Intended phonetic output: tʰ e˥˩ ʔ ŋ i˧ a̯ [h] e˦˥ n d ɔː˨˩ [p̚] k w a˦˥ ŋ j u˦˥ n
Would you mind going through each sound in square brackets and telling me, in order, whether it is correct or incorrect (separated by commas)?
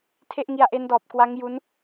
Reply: incorrect, correct